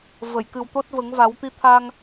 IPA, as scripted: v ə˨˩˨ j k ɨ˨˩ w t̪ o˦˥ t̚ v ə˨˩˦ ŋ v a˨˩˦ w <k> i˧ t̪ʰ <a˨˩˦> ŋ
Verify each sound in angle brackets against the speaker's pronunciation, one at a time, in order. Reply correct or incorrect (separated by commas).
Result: incorrect, incorrect